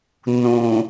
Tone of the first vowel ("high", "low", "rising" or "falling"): low